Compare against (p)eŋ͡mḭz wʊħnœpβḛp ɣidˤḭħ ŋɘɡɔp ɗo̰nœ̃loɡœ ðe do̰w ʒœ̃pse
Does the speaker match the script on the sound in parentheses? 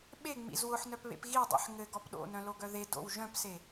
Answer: no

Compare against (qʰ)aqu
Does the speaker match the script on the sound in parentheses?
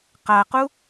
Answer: no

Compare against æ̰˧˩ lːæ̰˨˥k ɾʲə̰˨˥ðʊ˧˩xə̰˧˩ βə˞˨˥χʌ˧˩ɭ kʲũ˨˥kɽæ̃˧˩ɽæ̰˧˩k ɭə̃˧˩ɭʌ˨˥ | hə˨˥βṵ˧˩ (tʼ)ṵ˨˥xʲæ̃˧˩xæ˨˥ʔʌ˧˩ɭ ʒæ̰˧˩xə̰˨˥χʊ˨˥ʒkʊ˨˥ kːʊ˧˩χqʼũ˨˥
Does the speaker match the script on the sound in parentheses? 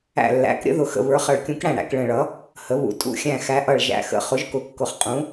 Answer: yes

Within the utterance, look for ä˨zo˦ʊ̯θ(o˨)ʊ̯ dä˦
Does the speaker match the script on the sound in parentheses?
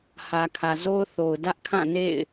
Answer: yes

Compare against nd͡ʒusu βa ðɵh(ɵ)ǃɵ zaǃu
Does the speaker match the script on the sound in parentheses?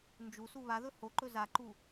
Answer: no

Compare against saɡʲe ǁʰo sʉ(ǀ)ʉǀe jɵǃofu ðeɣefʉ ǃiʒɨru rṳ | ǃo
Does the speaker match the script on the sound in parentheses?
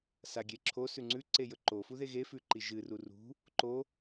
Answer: no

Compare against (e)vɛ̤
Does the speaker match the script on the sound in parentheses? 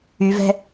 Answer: no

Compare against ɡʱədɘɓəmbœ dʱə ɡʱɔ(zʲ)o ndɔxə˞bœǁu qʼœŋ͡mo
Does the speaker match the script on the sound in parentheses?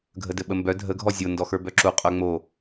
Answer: yes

